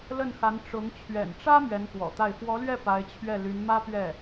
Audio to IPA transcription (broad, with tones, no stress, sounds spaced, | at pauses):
l ə˥˩ n x a˧˥ n ʈ͡ʂ ʊ˧˥ ŋ t͡ɕʰ ɥ ɛ̰˨˩ n ʈ͡ʂ ä˥ m ɥ ɛ˧˥ n k w ɔ̰˨˩ t̪ a˥˩ ɪ̯ f w ɔ˧˥ l ɥ ɛ˥˩ p a˧˥ ɪ̯ t͡ɕʰ ɥ ɛ˥˩ l y˧˥ n m ä˥ p ɥ ɛ˥˩